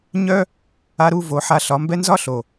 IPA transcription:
ɲ œ˦ | a˧ ɾ u˦˨ v o˨˦ ħ a˧ ɬ ɒ˨˦ m b ɛ˦ n z ɒ˦ ɬ o˨

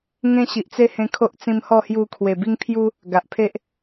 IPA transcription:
ŋ ẽ˦ ɕ i˨ ʔ t͡s e˦ h ẽ˧ kʰ o˦ ʔ t͡s ĩ˧ m h ɔ˥˧ h j u˧ kʰ w e˨˩ b i˦ ŋ pʰ j u˦ | ɡ a˨ ʔ pʰ e˦ ʔ

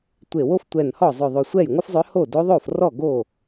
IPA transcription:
tʷ e˧˩ w o˥ f tʷ ɛ˧˩ n h ɔ˥˩ zˤ ʏ˧˩ ðˤ o˧˩ sʷ ɛ˥˩ j ŋʷ ɪ˥ f zˤ ʏ˧˥ h o˥˩ d o˧˥ ðˤ o˥˩ f r ɔ˥˩ ɡ o˥˩

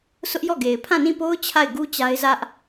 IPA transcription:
sʰ ʊ˦ ʔ j ɔ˦˨ ɡ e˨ ɪ̯ pʰ ã˦˨ n ĩ˦˨ p o˦ ʊ̯ t͡ɕʰ a˦˨ ɪ̯ ɡ u˦ t͡ɕ a˦ ɪ̯ z ä˦ ʔ

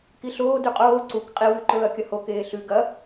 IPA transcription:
k i ɬ oː d ʉ qʼ oː ǀ u k qʼ i w ʉ ǃ ɵː ɐ̯ kʲ ɐ h o k eː ɬ ʉ ɡ ɐ

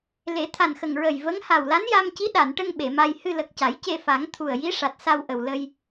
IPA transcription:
l e˨˩˦ t̪ʰ a˨˩ n x ə˨˩ ŋ ɹ ə˨˩ j v ə˧˥ ŋ h a˨˩ w l a˧˥ n j a˧ m c i˧˥ ɗ a˨˩˨ n ʈ ə˧ ŋ ɓ e˨˩˨ m a˧ j h ɨ˧ l ə˨˩ k̚ c a˨˩˦ j c e˧ f a˨˩˦ ŋ t̪ʰ u˨˩ ə̯ j i˧˥ ʂ a˨˩ t̚ s a˧ w ʔ ə˨˩ w l ə˧ j

